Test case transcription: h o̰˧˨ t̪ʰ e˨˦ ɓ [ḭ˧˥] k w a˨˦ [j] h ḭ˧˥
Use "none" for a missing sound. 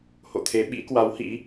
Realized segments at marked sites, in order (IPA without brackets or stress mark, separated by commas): ḭ˧˥, w